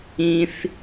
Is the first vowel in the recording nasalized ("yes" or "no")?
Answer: yes